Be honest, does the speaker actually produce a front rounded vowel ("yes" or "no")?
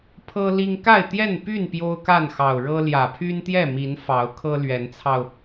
yes